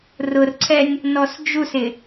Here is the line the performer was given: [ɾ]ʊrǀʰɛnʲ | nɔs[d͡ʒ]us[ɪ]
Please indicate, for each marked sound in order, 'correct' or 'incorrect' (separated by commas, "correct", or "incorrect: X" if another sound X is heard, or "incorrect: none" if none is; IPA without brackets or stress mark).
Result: incorrect: r, correct, correct